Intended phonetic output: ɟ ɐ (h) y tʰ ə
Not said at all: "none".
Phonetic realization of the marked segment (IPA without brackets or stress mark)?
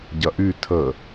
ʔ